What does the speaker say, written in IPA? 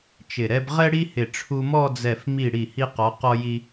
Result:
t͡ʃ ɪ˧˩ ɾ ɛ˥ b ʁ ɛ˥ ɽ i˥ h ɪ˧˩ ʈ͡ʂʰ u˧ m ɔ˥˧ d͡z ɛ˧˩ f m i˧˩ ɽ i˧˩ h i˧ q ɔ˩˧ q ɔ˧ j i˧

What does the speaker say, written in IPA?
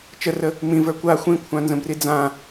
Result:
t͡ʃ ə r ə | m ĩ v ə˞ kʷ a xʷ ĩ kʷʰ ã n z ə̃ b r i d͡z ã

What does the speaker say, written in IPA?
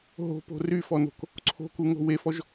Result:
ɦ o̤ p o̤ r y f ɔ n o̤ k | ǀʰ o̤ k u ŋ o̤ w e f ɔ ʒ

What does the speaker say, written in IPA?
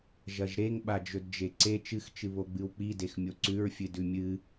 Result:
ʒ ɐ ʒ ɾ e ŋ ɓ a d͡ʒ ɵ d d͡ʒ e ǀ e t͡ʃ ɨ x t͡ʃ ɨ β o ɡ͡b ɨ w k͡p i d e x mʲ o ǀ ʉ ɹ fʲ ɨ d ʉ mʲ ɨ

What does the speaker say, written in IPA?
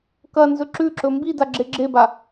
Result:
k ɐ n z ɵ ǁ ʉ ǁ ɵ m b i d a ɡ͡ǁ e ɡ͡ǁ e b a

